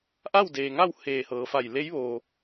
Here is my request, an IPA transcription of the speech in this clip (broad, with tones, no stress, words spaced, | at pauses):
ʔa˥˨wdeː˩ŋa˥˨w heː˧˩hɤː˩˧fa˧˩j le˧˥jʋoː˩